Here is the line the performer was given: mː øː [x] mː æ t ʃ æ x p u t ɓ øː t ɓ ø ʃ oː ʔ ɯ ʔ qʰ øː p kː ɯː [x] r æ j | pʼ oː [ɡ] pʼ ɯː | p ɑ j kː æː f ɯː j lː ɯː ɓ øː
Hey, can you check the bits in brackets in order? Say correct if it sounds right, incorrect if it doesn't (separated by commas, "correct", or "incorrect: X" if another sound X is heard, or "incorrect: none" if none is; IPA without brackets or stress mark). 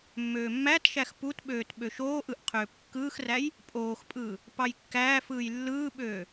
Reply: incorrect: none, correct, incorrect: x